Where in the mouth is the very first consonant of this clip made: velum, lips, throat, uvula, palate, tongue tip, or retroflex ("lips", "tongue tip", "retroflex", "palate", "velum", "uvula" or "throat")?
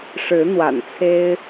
retroflex